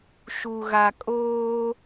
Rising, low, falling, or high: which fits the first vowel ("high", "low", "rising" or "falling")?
low